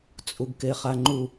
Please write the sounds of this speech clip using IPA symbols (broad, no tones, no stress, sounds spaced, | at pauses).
t͡sʼ u ɡ k e χ a ŋ͡ǃ u